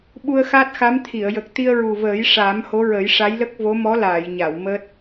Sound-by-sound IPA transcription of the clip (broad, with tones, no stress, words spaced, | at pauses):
ɓu˧ə̯xa˦˥t̚xa˧˥mt̪ʰi˨˩˨ə̯ jə˨˩k̚t̪i˧ə̯ɹu˨˩vəː˨˩˦j ʂaː˨˩˦mho˧˥ɹə˨˩˦j ʂa˧˥jlə˦˥k̚vo˧˥ mɔ˧˥laː˨˩˨jɲa˨˩˨w məː˦˥t̚